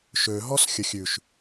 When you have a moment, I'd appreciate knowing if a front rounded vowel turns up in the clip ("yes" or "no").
yes